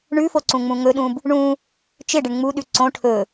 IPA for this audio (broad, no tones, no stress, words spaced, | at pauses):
ɳʉfo ǀũŋ͡mũŋɵɗũb | ɳũ | t͡ʃɪɖɪɳ ŋ͡muɗʉ ǀõ ʈʰɵ